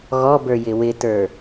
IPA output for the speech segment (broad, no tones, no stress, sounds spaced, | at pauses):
ɣ ɔ b ə˞ j ɪ w ɪ t ə˞